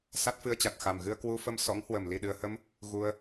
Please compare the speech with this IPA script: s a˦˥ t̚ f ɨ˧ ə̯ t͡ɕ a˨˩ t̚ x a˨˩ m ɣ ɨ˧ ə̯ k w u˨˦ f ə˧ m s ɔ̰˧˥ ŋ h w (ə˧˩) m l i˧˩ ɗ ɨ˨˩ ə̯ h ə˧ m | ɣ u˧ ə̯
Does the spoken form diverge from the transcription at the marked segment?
no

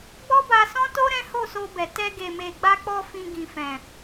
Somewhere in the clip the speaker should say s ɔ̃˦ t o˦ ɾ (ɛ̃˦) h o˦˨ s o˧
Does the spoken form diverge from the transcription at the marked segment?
no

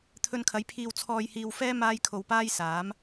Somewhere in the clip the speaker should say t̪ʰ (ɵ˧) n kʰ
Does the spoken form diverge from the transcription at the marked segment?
no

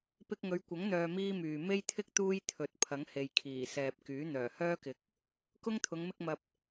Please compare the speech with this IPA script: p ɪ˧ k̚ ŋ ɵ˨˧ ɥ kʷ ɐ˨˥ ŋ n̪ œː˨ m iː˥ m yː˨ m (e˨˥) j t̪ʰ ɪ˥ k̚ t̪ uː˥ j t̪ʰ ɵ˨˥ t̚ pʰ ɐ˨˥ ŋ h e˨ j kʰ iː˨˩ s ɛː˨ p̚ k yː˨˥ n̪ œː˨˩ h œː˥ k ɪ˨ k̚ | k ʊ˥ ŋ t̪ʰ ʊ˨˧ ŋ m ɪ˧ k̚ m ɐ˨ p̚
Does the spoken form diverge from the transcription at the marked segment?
yes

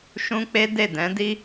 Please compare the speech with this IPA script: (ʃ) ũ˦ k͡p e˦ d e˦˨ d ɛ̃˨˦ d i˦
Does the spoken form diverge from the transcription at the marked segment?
no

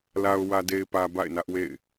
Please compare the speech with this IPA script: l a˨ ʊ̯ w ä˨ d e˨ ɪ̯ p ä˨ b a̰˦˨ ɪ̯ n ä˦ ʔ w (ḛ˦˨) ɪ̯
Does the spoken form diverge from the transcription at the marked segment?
no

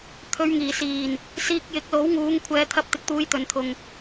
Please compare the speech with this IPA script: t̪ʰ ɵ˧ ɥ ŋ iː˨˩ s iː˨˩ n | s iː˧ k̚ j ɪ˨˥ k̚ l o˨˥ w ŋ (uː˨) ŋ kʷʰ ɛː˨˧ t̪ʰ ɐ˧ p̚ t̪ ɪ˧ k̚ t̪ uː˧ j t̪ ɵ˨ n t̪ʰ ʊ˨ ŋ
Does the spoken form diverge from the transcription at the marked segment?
yes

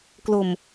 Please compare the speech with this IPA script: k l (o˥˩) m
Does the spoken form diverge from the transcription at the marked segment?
yes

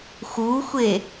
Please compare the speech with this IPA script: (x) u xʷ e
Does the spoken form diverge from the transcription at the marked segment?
no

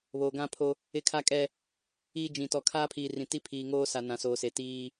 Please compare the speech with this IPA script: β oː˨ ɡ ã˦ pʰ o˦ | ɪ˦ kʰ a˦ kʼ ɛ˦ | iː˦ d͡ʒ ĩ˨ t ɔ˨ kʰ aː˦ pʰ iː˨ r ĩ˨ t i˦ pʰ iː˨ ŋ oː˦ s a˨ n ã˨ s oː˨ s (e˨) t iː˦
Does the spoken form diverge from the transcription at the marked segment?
no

